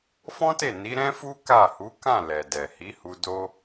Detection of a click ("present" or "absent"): absent